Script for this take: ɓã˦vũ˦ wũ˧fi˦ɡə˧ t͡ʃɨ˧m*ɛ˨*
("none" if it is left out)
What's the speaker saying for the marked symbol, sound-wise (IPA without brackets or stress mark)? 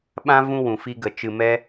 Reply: ɛ˦